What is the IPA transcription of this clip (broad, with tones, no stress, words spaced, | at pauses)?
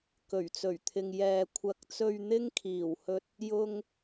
kɵ˨˩ɥt͡sɵ˨˩ɥt̪ʰɪ˨ŋ jɛː˨kʷʰɐ˨˥k̚t͡sɵ˧ɥ n̪ɪ˥ŋkʰiː˨˩w hɵ˧t̚ | jʊ˧ŋ